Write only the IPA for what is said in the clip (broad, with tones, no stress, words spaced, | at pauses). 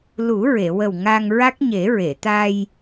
lu˨˩˦ɹe˨˩˨wə˨˩w ŋa˧ŋɹa˦˥k̚ ɲe˨˩˦ɹe˨˩˨t̪a˧j